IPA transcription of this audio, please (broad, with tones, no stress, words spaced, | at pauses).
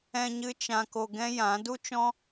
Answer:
ɛ̃˧ɲɨ˧ t͡ʃã˧ko˧ɡɛ̃˦jã˨˦ du˦t͡ʃɔ̃˦